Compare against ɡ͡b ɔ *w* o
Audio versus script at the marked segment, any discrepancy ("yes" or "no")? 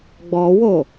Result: no